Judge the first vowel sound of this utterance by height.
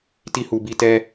high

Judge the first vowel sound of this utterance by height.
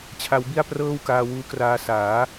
low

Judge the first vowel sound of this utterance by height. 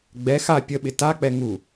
mid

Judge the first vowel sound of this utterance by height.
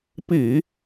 high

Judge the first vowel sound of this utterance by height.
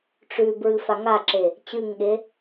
high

